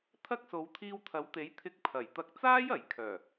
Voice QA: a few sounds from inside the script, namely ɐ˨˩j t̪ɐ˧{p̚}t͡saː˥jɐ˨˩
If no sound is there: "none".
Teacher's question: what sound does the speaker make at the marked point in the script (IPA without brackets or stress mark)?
k̚